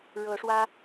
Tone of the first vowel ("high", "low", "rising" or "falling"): rising